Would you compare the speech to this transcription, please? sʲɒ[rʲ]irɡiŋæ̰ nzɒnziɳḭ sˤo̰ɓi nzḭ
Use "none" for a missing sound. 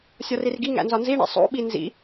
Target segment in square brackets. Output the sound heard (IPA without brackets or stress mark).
r